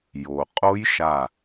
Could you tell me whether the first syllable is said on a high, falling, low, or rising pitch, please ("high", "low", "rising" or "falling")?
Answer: low